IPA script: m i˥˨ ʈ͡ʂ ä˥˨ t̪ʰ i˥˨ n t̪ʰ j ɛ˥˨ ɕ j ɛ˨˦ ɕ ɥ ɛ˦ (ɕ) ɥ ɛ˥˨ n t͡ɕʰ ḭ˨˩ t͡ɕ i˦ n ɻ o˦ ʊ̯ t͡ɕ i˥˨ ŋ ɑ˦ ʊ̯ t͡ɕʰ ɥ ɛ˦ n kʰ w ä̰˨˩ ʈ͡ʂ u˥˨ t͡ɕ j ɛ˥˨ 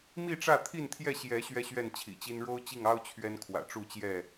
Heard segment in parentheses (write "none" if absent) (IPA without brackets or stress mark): ɕ